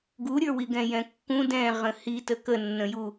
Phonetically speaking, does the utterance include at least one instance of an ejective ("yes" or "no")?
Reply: no